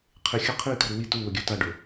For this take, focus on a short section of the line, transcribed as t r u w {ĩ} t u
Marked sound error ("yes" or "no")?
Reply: yes